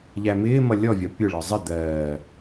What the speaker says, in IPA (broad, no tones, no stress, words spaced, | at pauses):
ʎæmɪːmʌ lʲɔvʲɒ pʲʊɭɒ zˤɪ d̪ɜː